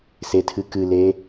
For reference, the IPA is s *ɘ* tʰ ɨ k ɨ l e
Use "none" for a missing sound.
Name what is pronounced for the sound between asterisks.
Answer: e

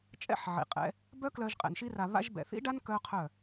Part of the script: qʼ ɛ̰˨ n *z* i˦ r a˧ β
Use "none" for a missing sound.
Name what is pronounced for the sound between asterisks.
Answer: ʃ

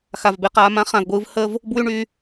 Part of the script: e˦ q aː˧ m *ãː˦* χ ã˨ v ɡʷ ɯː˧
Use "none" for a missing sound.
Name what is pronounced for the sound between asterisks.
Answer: ã˦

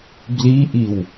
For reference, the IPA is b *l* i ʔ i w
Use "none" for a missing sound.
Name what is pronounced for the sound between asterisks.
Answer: l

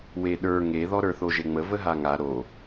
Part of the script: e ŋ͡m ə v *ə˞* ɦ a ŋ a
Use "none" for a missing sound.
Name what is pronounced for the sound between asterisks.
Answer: ə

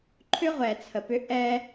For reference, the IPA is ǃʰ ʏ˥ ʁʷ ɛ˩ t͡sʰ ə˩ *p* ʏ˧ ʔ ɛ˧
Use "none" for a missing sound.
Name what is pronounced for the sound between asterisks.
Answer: p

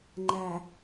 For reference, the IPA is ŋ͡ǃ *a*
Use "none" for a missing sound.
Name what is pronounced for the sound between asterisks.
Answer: æ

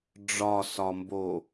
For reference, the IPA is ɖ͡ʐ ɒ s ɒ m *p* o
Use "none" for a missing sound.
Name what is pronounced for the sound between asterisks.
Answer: b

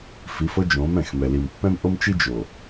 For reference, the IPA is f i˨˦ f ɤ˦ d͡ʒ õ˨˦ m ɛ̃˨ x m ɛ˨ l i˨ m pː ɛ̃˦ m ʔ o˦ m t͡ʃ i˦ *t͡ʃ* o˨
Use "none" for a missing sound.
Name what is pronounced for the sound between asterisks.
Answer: d͡ʒ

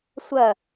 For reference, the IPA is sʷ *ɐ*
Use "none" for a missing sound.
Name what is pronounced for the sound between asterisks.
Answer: ɐ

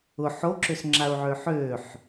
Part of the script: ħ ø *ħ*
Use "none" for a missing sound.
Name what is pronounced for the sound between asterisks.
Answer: ħ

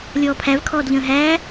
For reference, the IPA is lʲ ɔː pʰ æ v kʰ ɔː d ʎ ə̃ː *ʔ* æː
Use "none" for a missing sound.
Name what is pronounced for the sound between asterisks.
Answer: ɦ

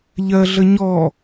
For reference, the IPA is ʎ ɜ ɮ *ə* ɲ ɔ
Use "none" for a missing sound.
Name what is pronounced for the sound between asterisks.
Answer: ə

